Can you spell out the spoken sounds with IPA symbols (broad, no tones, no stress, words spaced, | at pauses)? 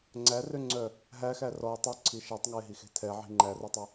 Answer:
ŋ͡ǀærøŋ͡ǀœ | ɦæxæ rɔɪ̯ tˤøǀʰi ʃætˤŋæɪ̯ɦixe̤ tʰɛʕi̤ ŋ͡ǃærœtˤœ